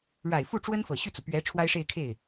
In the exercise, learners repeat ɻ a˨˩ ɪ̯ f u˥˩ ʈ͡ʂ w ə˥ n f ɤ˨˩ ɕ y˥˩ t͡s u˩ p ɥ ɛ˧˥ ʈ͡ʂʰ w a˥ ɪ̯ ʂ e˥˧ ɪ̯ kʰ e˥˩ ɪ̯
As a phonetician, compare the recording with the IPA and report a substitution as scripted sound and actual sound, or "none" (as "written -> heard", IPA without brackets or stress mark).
none